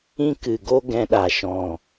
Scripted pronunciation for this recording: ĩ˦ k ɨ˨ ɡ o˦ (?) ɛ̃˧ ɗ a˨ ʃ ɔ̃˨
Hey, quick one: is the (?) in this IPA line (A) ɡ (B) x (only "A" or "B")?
A